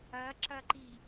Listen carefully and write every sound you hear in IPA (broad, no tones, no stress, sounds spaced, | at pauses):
ɐ ǁ ɐ ǃ i